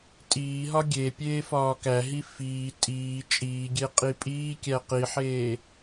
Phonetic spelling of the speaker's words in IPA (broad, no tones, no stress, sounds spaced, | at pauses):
tʼ iː ɦ ɒ ɡʲ e pʲ eː f ɒː k æ ɦ i f iː tʼ iː t͡ʃʼ iː ɡʲ e qʼ i pʼ iː kʲ æ q i ħ eː